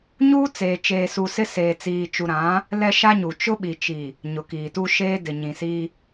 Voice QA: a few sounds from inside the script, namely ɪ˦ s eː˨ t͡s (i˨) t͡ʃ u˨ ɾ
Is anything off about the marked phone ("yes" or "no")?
yes